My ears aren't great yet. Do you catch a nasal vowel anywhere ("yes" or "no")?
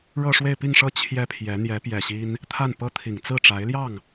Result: no